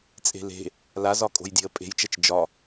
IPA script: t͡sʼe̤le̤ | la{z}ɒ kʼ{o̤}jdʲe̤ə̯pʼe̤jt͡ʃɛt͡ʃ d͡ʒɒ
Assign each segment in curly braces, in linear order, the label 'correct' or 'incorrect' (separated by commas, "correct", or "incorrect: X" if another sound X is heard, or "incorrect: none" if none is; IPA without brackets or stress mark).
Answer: correct, correct